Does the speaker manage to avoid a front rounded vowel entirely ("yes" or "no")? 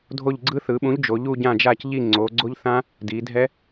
yes